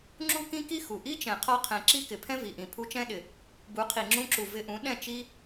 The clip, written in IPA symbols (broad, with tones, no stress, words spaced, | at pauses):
ŋ͡ǁu˦kĩ˦ki˦ xu˨ ʔi˦t͡ʃɛ̃˨ qʰɒ˧qʰɛ̃˨ ǁi˦kɪ˨pʰɛ̃˦ vi˨ʔĩ˨ pʰu˧t͡ʃɛ̃˦ ɗɪ˨ | bu˨˦qʰi˨ ŋ͡ǁũ˧ǁu˨ vɪ˧ʔũ˨˦ ɗɛ̃˦˨ t͡ʃi˧